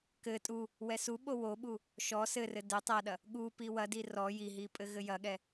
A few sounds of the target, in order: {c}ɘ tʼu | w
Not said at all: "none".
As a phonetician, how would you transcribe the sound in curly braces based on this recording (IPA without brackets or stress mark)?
k